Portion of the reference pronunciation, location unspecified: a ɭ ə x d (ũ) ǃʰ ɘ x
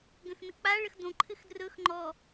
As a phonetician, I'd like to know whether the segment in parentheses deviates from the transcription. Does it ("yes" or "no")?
yes